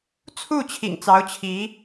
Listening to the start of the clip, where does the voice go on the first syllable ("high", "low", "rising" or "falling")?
falling